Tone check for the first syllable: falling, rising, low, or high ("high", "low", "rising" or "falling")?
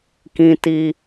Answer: high